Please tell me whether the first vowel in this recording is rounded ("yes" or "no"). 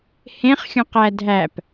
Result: no